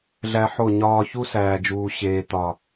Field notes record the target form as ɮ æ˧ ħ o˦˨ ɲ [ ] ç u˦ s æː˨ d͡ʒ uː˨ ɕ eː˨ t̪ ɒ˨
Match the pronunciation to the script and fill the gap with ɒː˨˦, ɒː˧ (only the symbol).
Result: ɒː˧